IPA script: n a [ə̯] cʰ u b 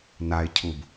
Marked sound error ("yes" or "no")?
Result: yes